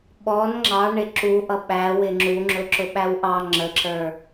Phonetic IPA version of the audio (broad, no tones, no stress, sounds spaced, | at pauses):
ɓ ɔ n ŋ͡ǁ ɑ ɳ ɪ ǁ u ʔ ʌ ɓ æ w ɪ ŋ͡ǁ u ŋ͡ǁ ʊ ǁ ʊ ɓ æ w ʔ ɑ ŋ͡ǁ ə ǁ ə˞